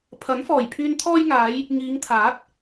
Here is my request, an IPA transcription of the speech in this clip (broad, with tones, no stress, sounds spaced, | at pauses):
pʰ ɐ˨˥ n f ɔː˨˩ j pʰ yː˧ n t̪ʰ ɔː˧ j ŋ aː˨˧ j | ŋ iː˨˧ ŋ t̪ʰ aː˨˥ t̚